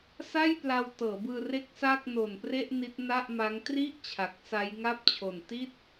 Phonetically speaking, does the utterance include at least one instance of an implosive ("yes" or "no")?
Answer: no